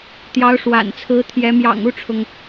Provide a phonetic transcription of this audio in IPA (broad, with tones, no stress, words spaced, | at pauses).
t̪jɑ˧˥ʊ̯ʂwa̰˨˩nt͡sʰɹ̩˧˥t̪ʰjɛ˧˥ mjɑ̰˨˩ŋu˥˩ʈ͡ʂʰʊ˩ŋ